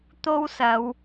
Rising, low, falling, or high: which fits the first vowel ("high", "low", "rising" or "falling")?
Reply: high